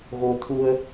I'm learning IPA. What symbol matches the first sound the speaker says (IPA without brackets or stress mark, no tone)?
ɣ